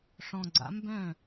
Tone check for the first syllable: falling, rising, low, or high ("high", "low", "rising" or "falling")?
low